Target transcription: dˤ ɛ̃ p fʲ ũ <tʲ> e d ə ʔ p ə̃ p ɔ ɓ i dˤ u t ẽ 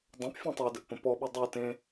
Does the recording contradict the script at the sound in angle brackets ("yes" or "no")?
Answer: yes